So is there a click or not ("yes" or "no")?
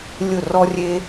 no